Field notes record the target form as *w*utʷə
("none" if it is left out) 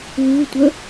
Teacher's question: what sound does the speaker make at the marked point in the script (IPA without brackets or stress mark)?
w